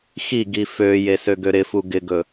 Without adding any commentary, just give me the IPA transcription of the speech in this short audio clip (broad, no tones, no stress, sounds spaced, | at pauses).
x i ɡ i f ø j e s ø ɡ ø ɾ ɪ f u ɡ ɪ ɡ ɵ